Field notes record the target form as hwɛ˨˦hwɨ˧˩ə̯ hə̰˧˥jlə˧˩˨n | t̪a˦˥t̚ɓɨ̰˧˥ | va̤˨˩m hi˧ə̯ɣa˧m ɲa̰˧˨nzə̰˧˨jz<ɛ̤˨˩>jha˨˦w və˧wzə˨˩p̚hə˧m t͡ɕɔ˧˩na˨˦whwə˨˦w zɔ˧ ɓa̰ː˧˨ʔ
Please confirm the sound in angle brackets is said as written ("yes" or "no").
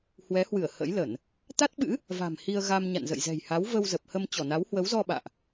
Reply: yes